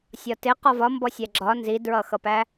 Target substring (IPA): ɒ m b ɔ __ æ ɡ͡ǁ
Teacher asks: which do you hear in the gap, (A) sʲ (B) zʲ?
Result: A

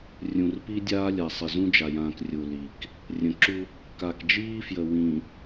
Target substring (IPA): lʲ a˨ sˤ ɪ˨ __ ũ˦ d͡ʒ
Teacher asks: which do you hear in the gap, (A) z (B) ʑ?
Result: A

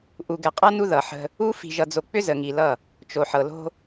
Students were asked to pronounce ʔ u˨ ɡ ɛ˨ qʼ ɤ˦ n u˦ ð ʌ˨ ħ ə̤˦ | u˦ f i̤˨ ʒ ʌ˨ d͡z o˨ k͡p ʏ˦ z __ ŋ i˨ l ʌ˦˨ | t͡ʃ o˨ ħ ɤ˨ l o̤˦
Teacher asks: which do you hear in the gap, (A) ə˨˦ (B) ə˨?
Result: B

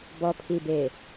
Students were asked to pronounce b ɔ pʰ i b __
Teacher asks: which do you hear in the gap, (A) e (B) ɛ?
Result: A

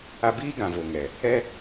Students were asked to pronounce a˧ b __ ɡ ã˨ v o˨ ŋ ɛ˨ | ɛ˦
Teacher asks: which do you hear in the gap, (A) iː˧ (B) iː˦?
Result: B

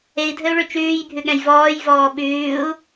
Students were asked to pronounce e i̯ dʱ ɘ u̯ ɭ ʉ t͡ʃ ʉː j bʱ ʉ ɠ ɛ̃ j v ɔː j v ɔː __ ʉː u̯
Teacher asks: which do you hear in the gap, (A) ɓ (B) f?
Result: A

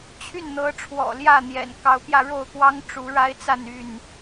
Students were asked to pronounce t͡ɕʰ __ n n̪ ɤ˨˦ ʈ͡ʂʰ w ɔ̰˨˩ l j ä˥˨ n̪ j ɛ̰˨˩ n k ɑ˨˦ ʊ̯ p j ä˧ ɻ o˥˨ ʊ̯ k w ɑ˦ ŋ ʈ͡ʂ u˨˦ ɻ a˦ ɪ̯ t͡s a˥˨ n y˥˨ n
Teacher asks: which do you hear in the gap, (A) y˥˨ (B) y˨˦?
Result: A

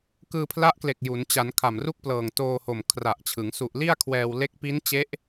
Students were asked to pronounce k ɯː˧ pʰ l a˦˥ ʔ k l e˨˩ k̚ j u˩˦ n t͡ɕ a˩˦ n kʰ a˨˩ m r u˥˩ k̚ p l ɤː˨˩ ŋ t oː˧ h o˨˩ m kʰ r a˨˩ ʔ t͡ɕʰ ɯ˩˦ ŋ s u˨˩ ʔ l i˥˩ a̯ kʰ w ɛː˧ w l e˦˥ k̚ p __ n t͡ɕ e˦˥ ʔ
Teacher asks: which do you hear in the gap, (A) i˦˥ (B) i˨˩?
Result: A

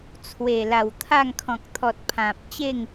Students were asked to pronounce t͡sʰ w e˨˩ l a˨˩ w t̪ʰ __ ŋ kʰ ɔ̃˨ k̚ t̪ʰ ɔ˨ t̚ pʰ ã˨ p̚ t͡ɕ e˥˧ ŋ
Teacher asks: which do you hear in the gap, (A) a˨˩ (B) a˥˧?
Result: B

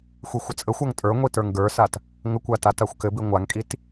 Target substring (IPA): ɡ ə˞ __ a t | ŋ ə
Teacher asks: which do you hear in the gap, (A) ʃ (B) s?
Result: B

